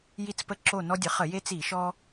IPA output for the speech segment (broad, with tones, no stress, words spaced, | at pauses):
ji˦t͡spə˦ ǁo˦˨ nɔ˦dʲə˩˥χə˧˩˧ je˦t͡si˧˩˧ ʃɔ˦